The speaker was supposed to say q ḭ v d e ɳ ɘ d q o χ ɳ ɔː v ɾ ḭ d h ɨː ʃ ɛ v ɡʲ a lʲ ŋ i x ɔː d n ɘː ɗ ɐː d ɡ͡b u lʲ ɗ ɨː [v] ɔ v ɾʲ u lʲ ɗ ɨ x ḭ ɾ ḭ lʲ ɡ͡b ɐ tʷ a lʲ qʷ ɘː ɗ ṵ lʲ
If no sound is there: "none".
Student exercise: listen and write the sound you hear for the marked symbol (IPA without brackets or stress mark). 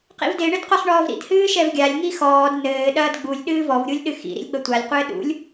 v